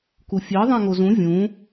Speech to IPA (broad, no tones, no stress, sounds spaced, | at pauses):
k u fʲ e ðˤ ɛ̃ ŋ o z ũ vʲ ũ